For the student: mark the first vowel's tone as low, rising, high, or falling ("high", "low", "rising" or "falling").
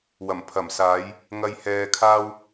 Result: low